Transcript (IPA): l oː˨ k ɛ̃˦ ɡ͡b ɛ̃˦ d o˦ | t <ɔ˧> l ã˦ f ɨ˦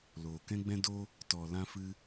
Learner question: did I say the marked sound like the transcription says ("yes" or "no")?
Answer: yes